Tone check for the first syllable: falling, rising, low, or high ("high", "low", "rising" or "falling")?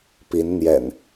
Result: rising